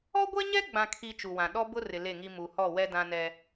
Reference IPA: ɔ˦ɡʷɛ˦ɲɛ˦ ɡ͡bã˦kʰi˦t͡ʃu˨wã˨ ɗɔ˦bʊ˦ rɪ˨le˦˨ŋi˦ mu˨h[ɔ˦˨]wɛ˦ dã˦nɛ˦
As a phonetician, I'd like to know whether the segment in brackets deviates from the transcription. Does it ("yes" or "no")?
no